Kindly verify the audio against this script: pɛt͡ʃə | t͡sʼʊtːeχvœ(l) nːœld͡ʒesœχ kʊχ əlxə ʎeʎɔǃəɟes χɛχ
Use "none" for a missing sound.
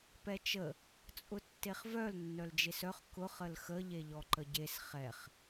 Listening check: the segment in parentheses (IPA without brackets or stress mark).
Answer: l